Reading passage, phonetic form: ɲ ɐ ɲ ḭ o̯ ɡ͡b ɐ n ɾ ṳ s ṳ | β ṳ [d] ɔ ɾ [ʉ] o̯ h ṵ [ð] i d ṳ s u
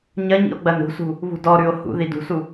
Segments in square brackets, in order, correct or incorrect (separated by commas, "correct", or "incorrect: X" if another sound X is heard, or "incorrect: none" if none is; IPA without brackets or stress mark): correct, correct, correct